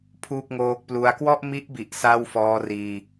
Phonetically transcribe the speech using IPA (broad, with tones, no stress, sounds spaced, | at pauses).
pʰ uː˥˩ k̚ ŋ oː˦˥ k̚ p l u˦˥ a̯ k w ɔ˥˩ ʔ m i˦˥ ʔ b i˨˩ ʔ s a˥˩ w f ɔː˦˥ r iː˧